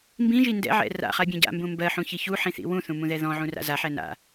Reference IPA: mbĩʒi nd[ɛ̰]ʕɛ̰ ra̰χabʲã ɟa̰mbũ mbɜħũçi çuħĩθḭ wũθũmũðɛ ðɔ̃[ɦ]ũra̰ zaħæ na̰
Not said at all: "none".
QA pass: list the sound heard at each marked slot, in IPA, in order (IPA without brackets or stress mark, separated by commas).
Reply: ɛ̰, ʕ